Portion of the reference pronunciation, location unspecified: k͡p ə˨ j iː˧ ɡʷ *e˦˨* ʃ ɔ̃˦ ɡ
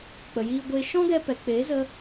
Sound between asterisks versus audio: incorrect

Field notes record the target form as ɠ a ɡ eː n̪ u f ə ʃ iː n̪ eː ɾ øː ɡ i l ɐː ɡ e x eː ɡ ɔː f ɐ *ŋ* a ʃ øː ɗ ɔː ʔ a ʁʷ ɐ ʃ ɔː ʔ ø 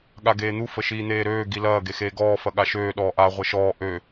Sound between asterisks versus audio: incorrect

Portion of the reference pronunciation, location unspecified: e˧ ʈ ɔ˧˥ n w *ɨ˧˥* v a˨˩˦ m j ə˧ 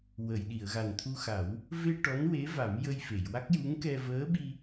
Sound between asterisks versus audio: incorrect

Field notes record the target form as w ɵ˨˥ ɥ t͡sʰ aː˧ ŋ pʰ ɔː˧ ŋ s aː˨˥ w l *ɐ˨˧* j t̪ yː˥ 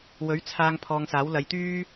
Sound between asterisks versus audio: correct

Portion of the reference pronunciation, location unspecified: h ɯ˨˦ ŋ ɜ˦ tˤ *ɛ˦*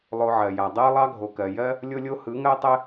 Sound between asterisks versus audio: correct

